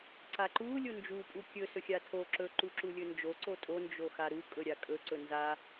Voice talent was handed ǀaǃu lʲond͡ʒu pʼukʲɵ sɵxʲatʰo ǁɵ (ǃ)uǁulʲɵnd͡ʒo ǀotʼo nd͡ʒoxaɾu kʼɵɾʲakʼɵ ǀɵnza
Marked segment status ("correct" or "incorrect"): correct